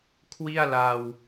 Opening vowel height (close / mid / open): close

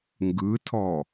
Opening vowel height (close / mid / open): close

